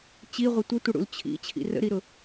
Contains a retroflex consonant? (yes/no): yes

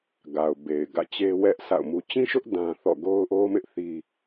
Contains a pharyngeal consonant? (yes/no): no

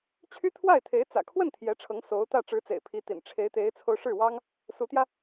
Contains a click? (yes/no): no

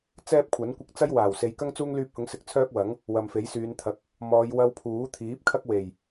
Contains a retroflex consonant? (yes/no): no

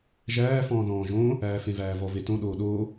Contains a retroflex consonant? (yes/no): no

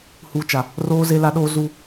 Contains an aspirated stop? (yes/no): no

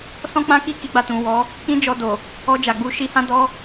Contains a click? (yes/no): no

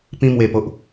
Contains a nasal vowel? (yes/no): yes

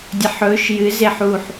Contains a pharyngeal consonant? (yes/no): yes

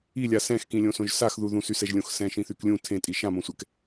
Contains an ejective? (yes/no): yes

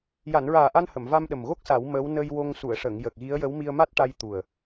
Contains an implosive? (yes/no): yes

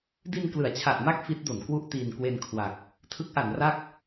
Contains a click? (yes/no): no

